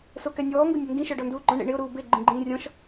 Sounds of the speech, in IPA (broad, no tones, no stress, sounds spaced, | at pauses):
s o k ɛ nʲ ɔː ŋ ɡ ʊ nʲ o ŋ ɡ ĩ ʃ ɔ ɖ ɔ n d uː ɡ͡ǃ ɔ̃ ɳ ḛ ɳ ɪ ʊ̯ ɾ uː b e ɡ͡ǃ ĩ ɡ͡ǃ ĩː rʲ ɔ̃ ʃ